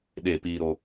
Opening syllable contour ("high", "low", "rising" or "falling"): falling